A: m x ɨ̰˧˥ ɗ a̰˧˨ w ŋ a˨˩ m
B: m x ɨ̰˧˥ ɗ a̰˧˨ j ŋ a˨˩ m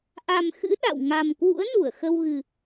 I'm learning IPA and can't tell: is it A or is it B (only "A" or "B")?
A